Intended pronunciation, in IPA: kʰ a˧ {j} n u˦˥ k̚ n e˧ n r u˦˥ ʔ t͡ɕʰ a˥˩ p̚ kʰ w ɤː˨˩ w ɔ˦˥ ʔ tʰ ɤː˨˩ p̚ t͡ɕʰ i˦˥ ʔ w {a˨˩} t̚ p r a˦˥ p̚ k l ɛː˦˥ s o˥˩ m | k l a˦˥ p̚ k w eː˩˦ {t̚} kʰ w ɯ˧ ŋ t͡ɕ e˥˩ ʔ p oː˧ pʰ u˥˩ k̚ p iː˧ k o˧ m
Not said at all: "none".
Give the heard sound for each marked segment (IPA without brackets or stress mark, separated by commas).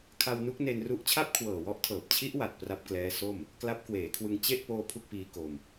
w, a˨˩, none